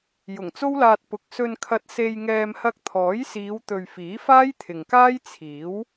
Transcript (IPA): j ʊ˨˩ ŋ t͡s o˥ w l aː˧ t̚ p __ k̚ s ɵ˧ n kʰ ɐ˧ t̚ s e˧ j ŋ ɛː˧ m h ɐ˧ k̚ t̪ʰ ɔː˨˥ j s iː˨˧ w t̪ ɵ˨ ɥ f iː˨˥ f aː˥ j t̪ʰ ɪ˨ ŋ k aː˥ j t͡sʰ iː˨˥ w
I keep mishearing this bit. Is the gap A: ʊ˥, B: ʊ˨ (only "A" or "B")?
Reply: B